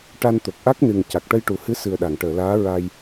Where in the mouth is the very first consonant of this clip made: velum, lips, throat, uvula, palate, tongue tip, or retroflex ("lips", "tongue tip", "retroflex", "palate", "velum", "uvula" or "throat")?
retroflex